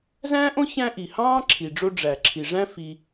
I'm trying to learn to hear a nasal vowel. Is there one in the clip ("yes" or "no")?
yes